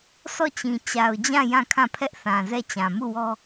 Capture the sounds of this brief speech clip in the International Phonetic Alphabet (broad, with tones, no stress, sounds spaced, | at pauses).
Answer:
sʰ ɔ˦˨ t͡ɕ ĩ˨ t͡ɕ a˨ ʊ̯ d͡ʑ ã˦˨ j ã˦˨ kʰ ã˦˨ pʰ ɛ˦ ʔ θ ã˨ z ɛ˦˨ t͡ɕ ã˨ m u˦˨ w ɔ˦